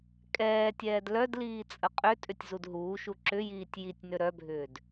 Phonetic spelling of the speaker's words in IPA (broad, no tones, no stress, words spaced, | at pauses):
kʼɛːtʲɛːd lœdliːt͡sʼə qʼøtʼʏtʲzud ɦuːʃu ǁʏjiːtʲ jitʲnø ɾœbʱʏːd